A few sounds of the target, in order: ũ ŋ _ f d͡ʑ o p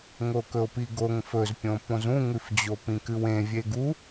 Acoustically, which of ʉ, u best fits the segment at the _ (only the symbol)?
ʉ